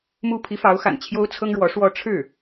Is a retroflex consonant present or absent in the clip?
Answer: present